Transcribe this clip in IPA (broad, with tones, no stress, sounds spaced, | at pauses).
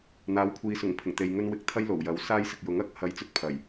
n̪ aː˨˥ w kʷʰ iː˨˧ s ʊ˨˩ ŋ pʰ ɪ˨˩ ŋ t̪ e˨ j ŋ ɵ˥ n w ɪ˧ k̚ t̪ʰ ɐ˥ j l o˨˩ w j ɐ˨˥ w s aː˥ j s ɪ˨ k̚ j ʊ˨˥ ŋ ɐ˨˥ k̚ h ɐ˧ j t͡s ɵ˥ t̚ pʰ ɐ˨˩ j